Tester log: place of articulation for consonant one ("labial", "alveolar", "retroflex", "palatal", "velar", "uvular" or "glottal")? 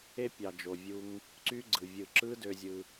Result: labial